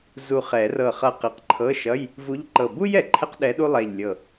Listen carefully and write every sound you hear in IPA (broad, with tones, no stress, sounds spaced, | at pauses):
z u˧˩ χ ɛ˨˩˦ r ɤ˧˩ χ ʌ˧˩ q i˨˩˦ q ǃʰ ɤ˧˥˧ ʃ ʌ˧˥˧ j | v u˧˥ ʎ ǃ ɤ˧˩ b u˥ j ɛ˩ ǃʰ ɛ˥ q ɗ ɛ˧˥ ɗ u˥ lˠ ɛ˧˩ ʎ lʲ ɤ˧˩